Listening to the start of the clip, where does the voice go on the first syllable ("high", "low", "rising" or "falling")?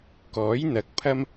rising